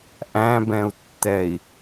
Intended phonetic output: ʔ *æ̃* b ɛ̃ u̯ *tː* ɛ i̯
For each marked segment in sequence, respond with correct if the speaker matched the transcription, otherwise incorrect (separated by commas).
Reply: correct, correct